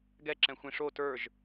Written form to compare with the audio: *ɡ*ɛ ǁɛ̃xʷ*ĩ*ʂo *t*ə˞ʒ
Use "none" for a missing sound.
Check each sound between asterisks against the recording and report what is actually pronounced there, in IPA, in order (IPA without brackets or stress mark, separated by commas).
ɡ, ĩ, t